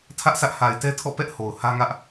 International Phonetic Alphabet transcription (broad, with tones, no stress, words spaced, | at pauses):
tʰä˦ʔsʰä˦ʔ ha˨ɪ̯tɛ˦tʰɔ̰˦˨pɛ˦ʔ ho˨ʊ̯ hä˦ŋä˦ʔ